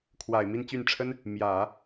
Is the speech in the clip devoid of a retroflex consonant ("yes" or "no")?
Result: no